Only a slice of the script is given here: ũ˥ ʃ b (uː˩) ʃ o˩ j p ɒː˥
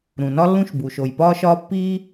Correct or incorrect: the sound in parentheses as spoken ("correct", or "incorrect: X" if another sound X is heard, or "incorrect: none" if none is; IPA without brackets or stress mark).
correct